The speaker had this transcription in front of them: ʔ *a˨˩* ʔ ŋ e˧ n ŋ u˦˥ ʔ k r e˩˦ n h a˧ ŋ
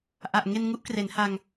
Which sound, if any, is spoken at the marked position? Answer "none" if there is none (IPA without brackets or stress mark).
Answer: a˨˩